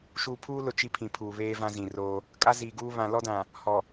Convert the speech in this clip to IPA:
ʃuː˨pʰuː˦lʊ˨ t͡ʃi˦pʰĩ˨pʰuː˨ βeː˦vã˦zĩ˨roː˦ | kʼa˦ziː˨ɡuː˦ βã˨lɔ˦dã˨ | hɔ˨

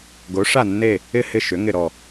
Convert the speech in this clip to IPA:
ɡo˨˥ ʂa˦˨nːe˦˨ | ɪ˦˨hɪ˦˨ ʃʏ˨˥ŋɪ˦˨ɾɔ˦˨

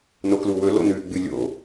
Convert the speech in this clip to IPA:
nokluwɵ lo̰nʉ ɡ͡bɨlʲo̰

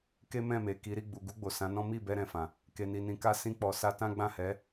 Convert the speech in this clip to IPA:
ke˦mɛ̃˦˨me˨ki˨˦ ɾi˦˨ ɡ͡bu˨ɡu˧ɡ͡bo˨ sã˨˦nɔ̃˦ mi˦˨bɛ˧ ɾɛ̃˨fã˨ | ke˨ni˨ nĩ˨ka˧ sĩ˧k͡pɔ˨sa˧tã˦ ɡ͡bã˦˨hɛ˨˦

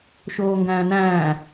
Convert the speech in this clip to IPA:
ʃoːŋɡæ̃ːnæ̃ː

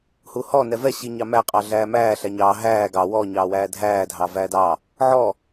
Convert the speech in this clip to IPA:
huhɔ nɛvɛ ɕiɲɑmæ qʼɑɮæːmæː ɬæɲɑː ɦæː ɡɑ wɔ ɲɑːwæːdʱæː dʱɑːvæːdɑ | ʕɔ

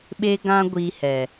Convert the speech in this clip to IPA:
ɓe˧ɡã˧ ɡʷi˧hɛ˨

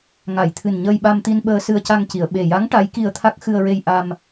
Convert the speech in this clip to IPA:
ŋa˨˩˨jt̪ʰɨ˨˩nɲəː˧jɓa˧m t̪i˧n ɓəː˧sɨ˧ə̯ca˧ŋci˨˩˨ə̯ ɓe˨˩ ja˧˥ŋ ʈa˧˥jki˧ə̯t̪ʰa˦˥k̚ xɨ˧ə̯ɹe˧jʔa˧m

